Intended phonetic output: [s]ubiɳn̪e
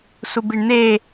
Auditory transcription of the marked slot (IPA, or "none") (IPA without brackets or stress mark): s